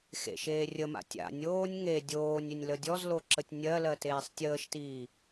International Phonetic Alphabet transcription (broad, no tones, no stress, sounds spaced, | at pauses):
x ḛ ʃ eː rʲ ə m a̰ tʲ a̰ nʲ oː nʲ ŋ e dʲ oː nʲ ʏ nʲ l ə dʲ ɔ z l o ǁ ə tʲ nʲ ɜ l ɜ t eː sˤ tʲ əː ʃ t iː